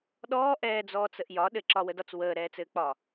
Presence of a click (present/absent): present